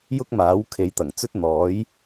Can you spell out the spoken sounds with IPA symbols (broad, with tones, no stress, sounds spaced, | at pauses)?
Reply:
j ʊ˥ k̚ m aː˨˥ w kʰ e˨˧ j t̪ ɐ˨˩ ŋ t͡s ɵ˥ t̚ n̪ ɔː˨˥ j